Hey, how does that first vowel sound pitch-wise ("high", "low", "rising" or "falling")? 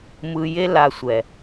low